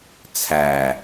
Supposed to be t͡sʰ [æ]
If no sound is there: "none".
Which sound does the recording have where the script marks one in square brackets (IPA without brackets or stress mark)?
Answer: æ